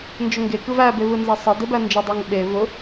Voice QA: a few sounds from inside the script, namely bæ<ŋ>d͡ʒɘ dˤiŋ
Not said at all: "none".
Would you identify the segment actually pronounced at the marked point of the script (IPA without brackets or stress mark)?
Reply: n